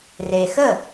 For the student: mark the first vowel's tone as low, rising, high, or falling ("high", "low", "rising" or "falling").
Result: low